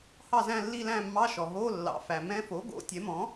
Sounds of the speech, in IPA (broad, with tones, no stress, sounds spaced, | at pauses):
h ɑ˥˨ z æ̃˥˨ lː i˥˨ l æ̃˥˨ mː ɑ˧˥˧ ʃ ɔ˩ ɦ o˧˥˧ lː ɑ̰˩ f æ˩ m ɛ̃˧˥˧ f o˩˥ ɡ o̰˩˥ tʲ ɛ˩˥ m ɔ̃˩˥